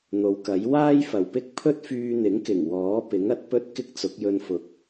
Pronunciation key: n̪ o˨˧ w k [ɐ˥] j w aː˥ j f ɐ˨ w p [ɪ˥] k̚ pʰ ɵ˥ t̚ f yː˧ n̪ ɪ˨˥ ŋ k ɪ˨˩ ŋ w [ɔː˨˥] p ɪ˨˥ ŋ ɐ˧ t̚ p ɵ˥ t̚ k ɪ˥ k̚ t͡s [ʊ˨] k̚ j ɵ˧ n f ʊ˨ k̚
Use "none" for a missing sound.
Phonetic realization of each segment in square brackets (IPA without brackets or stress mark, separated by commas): ɐ˨˥, ɪ˥, ɔː˨˥, ʊ˨˥